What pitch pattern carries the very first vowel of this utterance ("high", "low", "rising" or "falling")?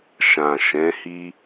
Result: low